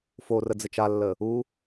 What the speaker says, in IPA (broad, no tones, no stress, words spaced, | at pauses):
forəd͡zɘt͡ʃ alːə | u